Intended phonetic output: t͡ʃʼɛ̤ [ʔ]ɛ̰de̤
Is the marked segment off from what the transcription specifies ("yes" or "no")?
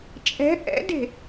no